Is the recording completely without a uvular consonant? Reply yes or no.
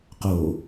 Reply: no